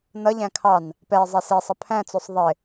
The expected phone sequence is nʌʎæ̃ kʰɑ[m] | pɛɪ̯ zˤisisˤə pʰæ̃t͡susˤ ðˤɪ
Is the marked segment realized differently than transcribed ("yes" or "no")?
yes